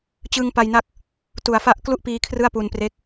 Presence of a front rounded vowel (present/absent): absent